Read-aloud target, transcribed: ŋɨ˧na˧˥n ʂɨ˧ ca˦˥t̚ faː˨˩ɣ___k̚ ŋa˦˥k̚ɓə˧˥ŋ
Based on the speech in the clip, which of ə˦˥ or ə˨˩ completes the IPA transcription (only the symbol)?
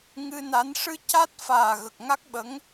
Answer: ə˨˩